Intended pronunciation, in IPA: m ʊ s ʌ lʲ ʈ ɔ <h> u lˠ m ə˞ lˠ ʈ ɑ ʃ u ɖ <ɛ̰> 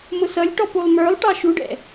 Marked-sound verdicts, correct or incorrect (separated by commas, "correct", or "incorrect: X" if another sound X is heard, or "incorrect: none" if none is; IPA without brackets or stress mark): incorrect: p, correct